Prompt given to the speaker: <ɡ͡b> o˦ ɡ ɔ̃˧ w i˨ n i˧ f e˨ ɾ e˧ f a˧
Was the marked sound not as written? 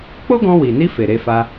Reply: yes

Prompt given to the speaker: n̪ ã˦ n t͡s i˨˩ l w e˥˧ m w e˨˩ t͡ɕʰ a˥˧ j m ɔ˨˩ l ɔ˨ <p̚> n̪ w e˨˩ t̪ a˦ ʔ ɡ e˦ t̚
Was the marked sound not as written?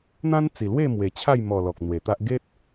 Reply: yes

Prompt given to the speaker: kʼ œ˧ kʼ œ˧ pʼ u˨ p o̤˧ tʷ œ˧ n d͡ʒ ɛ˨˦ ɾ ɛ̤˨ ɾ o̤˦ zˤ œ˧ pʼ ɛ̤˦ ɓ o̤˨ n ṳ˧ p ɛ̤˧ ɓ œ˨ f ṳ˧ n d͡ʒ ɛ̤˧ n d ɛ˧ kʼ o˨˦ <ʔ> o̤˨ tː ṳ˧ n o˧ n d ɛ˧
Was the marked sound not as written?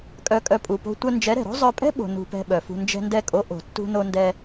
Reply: no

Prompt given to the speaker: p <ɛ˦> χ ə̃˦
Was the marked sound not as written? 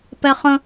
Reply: no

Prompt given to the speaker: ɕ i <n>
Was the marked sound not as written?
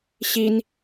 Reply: no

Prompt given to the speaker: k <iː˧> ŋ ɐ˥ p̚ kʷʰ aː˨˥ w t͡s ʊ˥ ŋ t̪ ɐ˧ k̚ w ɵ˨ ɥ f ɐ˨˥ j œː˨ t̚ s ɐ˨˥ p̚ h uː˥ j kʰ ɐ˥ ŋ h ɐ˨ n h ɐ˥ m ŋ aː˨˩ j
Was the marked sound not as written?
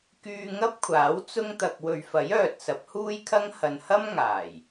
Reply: yes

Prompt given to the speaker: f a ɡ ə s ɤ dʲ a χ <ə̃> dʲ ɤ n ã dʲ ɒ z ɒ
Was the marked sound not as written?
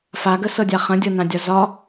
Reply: no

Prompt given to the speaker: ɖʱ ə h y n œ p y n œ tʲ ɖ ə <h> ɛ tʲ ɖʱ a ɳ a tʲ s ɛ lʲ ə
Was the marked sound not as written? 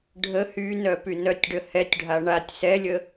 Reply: no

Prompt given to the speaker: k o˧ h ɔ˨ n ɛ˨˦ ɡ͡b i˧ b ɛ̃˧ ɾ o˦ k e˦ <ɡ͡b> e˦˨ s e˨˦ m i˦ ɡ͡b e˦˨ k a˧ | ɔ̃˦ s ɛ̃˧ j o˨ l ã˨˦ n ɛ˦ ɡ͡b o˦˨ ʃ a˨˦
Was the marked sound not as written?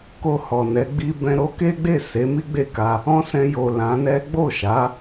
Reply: no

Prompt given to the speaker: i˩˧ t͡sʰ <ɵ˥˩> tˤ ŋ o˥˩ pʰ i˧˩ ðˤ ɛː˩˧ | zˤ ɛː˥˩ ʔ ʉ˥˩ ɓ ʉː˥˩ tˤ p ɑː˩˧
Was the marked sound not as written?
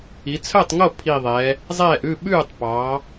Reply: yes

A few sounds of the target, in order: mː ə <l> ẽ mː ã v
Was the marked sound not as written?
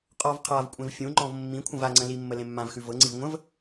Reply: no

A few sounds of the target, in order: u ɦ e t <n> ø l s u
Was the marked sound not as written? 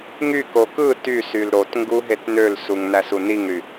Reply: no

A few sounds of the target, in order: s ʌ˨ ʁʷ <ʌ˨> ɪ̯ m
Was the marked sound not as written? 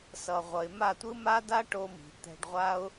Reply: no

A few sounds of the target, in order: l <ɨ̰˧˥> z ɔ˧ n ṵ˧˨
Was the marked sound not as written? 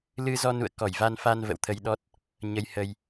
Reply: yes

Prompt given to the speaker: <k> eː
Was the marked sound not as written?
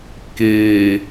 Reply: no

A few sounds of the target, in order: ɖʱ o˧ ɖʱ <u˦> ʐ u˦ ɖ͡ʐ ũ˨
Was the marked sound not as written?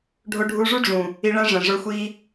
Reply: yes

